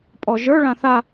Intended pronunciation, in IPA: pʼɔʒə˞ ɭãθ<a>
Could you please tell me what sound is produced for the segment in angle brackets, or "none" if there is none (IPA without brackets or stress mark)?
a